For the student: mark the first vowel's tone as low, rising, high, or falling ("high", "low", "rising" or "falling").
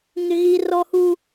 low